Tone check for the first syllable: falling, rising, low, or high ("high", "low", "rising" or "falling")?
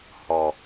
low